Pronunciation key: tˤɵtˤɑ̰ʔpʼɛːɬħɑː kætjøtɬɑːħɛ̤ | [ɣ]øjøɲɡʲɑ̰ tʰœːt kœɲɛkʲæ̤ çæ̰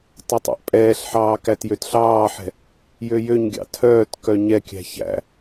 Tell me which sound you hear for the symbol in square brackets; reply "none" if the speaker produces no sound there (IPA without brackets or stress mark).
j